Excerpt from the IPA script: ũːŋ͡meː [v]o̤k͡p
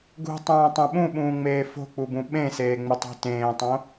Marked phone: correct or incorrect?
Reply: incorrect